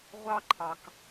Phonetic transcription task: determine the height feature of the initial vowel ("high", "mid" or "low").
low